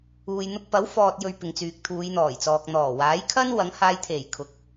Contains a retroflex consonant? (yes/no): no